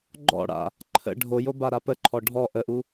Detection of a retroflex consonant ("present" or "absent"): present